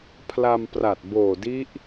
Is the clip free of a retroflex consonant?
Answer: yes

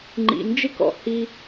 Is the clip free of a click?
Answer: no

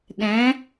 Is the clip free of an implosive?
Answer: no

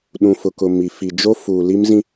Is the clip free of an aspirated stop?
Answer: yes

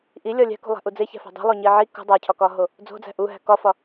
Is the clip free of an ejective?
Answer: yes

